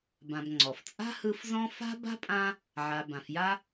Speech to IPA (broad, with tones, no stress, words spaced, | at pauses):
bã˨bŋ͡ǀɔ˩ft͡sʼa̤˥hɯ˦f zɔ̃˥ fa̤˥ba̤˥pʼã˦ | ʕa˨ bã˨f ja˥